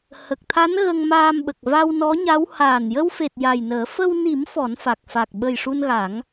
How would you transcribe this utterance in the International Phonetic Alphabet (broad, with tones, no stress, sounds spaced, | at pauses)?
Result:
h ə˨˩ k̚ t̪ʰ a˧˥ n ɣ ə˧ ŋ m aː˧ m ɓ ə˨˩ k̚ v a˧ w n ɔ˧˥ ɲ a˧˥ w h aː˨˩ n j ə˧ w f e˨˩ t̚ j a˨˩ j n əː˨˩˦ f ə˧ w n i˨˩˦ m f ɔ˨˩˦ n f a˨˩ k̚ f a˨˩ k̚ ɓ ə˨˩ j ʂ u˧ n ɣ a˨˩˦ ŋ